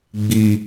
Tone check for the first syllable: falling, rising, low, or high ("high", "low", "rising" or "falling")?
high